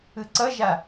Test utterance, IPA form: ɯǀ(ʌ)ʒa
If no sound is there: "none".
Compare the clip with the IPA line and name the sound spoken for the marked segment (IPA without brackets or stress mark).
ʌ